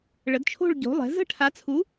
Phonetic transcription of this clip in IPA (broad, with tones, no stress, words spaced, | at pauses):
ɭə˩˥dt͡ʃʰo̤˥˨ɭɟo̤˩˥lˠɛ̤˩˥ zə̤˥˨ʈʰa˩˥t͡sʰu˩˥